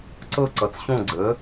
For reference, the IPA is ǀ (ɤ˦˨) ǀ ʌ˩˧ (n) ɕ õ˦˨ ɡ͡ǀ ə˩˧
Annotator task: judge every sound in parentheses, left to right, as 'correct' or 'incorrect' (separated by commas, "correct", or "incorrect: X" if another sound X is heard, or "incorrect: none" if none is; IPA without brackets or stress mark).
correct, incorrect: t͡s